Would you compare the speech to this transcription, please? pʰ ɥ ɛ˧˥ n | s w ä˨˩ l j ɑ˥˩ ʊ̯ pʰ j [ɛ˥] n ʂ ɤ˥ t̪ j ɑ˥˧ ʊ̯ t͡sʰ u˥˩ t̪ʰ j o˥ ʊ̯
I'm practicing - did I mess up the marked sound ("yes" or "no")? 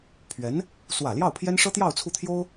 no